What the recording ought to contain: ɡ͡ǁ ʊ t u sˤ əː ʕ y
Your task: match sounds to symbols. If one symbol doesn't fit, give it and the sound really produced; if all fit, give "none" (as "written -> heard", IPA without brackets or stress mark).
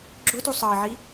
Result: y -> i